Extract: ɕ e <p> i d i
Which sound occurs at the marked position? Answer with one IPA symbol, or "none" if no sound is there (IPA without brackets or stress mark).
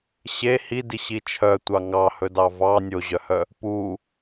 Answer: h